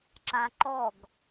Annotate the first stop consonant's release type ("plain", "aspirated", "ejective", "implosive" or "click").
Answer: click